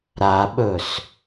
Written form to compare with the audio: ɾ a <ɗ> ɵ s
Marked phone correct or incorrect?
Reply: incorrect